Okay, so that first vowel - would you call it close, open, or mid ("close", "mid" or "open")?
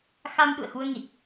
open